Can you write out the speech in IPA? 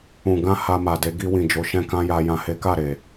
ũ˨ ɡ ã˧ h a˧ m a˨ d e˨˦ ɡ i˧ w ĩ˨ d͡ʒ o˨˦ ʃ ɛ̃˧ k ã˦ j a˧ j ã˨ h e˨˦ k a˦˨ ɾ e˨

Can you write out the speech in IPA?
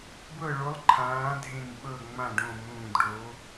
b ɤ˦˨ ɭ o˧˥ lˠ ǃʰ ãː˧˥ dʱ ẽ˦˨ n ɓ ɤ˦˨ ŋ͡m ã˦˨ ɖ õ˦˨ m ũː˦˨ d ɖ o˧˥

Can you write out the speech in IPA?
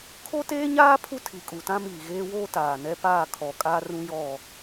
kʰ o˦ t eː˦ ɲ aː˦ pʰ u˦ tʰ i˨ kʼ u˨ t ã˦ m iː˨ ɣ eː˦ w oː˦ t aː˨ n ɛ˦ p aː˦˨ kʰ ɔ˨ kʼ a˦ r ũ˦ j ɔ˦˨

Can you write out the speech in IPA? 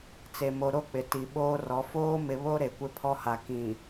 t͡s e˨ m o˨ ɾ o˦ k͡p ɪ˨ t i˨ ɓ oː˦ r ɔ˨˦ f oː˦ m ɪ˨ β o˦ ɾ e˨ kʷ ɪ˦ pʰ ɔ˦ h a˨ k ĩ˨

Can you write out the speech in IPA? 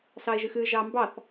s ɑ e̯ ʒ ɨ x ɨ ʒ ɑ m b ɑ θ

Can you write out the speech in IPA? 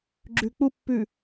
ɡ͡ǁ ʉ k͡p u pː ʉ

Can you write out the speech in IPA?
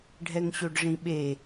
ɖʱ ɛ ŋ ɕ o ɖ ʐ ĩ ɓ e

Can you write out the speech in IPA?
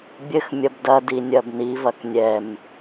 bʲ ɘ x mʲ ɐ b d ɐ d i nʲ ɐ b n i v ɐ k nʲ ɛ m

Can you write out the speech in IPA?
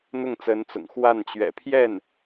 n̪ ʊ˥˩ ŋ t͡s ə˧˥ n t͡s ʊ̰˨˩ ŋ x w a˥˩ n t͡ɕ ɥ ɛ̰˨˩ pʰ j ɛ˥˩ n

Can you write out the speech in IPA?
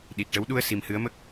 ɗ i˨˩ t̚ ʈ ə˧˥ w ɗ u˧ ə̯ s i˨˩ m h ɨ˧˥ ə̯ m ə˦˥ k̚

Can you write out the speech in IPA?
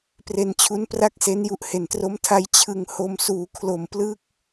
p r e˧ n t͡ɕʰ u˦˥ n p r a˥˩ k̚ s e˦˥ n j u˦˥ ʔ h e˨˩ n t r o˦˥ m tʰ a˦˥ j t͡ɕʰ ɯ˧ ŋ h o˧ m s uː˩˦ kʰ l o˨˩ m p l ɯ˦˥ k̚

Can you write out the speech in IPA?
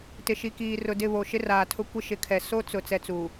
t ɪ˨ ʃ i˨ k iː˨ r ʊ˨ d ɪ˦˨ β o˨ ʃ ɪ˦ r aː˨ tʰ ʊ˦ kʷ ɪ˦ ʃ ɪ˨˦ kʰ ɛ˨ s o˦ t͡s ʊ˨ t͡s ɛ˦ t͡s u˨

